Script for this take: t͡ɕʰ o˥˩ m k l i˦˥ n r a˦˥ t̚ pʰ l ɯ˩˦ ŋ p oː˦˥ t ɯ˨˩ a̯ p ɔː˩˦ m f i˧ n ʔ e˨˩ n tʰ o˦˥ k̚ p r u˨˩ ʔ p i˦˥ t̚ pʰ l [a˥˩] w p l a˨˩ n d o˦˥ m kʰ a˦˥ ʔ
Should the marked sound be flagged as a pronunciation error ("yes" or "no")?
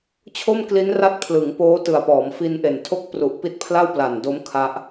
no